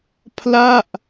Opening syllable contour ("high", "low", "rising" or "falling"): falling